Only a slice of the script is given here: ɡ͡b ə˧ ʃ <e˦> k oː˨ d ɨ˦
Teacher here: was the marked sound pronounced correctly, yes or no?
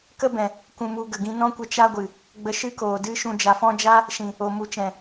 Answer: no